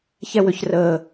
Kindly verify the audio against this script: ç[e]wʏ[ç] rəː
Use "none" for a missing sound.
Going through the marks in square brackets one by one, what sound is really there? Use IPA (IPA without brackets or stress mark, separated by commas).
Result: ɛ, ç